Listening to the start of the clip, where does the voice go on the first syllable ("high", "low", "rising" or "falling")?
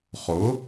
rising